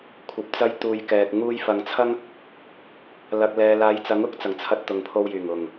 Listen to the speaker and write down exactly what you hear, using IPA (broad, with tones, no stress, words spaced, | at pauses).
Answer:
kʷʰɐ˨p̚t͡sɐ˧j t̪uː˨jkɛː˨k̚ ŋuː˧jfɐ˨ŋt͡sʰɐ˥ŋ | lɐ˨k̚lɛː˨laː˨˧jt͡sɐ˨˥ŋ ʊ˨˥k̚t͡sɐ˨˩ŋ t͡sʰɐ˧t̚ t̪ʊ˨ŋpʰo˧wjyː˨˩ŋ ʊ˨˩ŋ